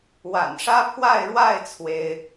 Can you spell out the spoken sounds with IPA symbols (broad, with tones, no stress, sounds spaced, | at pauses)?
w a̰˨˩ n ʂ ä˦ pʰ w a˥˨ ɪ̯ ɻ w a˥˨ ɪ̯ t͡sʰ w e˦ ɪ̯